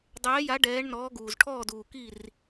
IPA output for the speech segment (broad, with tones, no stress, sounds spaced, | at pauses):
dˤ ɛː˨˦ j a˨˦ ɖ ɛː˨˦ ɳ n ɔː˨˦ ɡ uː˩ z ʈʰ ɔː˧˩ d uː˩ k i˧˩ r